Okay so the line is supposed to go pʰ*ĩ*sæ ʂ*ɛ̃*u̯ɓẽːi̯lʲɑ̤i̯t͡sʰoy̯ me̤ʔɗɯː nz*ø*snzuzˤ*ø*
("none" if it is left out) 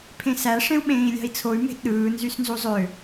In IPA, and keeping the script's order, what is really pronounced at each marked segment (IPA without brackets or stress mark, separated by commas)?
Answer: ẽ, ẽ, y, ø